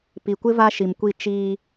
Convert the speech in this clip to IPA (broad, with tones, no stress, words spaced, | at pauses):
pi˨kʷɪ˦ va˦ʃi˨mkʷi˦˨ t͡ʃiː˦